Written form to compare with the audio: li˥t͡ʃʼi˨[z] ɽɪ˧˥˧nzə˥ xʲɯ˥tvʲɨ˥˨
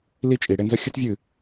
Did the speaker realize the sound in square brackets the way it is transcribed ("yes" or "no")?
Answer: no